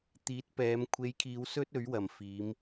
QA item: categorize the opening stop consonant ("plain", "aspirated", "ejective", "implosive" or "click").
plain